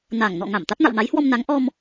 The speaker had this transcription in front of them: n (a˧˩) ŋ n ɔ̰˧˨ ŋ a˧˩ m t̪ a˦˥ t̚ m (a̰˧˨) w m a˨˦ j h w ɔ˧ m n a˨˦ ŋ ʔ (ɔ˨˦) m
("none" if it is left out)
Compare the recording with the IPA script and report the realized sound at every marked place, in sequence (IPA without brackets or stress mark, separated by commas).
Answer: a˧˩, a̰˧˨, ɔ˧